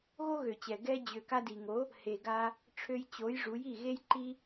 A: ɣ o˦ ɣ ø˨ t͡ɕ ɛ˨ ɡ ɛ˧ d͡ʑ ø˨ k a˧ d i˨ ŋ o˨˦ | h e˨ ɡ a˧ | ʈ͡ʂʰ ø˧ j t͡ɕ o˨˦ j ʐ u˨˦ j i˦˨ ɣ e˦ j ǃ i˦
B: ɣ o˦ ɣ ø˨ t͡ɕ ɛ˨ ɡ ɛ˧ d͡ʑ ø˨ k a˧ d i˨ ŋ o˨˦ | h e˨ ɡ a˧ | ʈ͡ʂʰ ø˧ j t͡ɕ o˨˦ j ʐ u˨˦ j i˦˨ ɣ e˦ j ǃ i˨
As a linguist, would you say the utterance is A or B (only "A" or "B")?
A